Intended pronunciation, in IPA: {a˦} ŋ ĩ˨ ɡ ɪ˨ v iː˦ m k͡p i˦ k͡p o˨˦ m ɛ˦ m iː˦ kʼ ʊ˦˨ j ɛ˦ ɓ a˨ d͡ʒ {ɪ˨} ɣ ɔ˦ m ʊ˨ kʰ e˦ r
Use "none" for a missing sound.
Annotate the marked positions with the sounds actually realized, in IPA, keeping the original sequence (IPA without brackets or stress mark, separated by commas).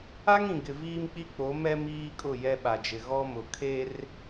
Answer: a˦, ɪ˨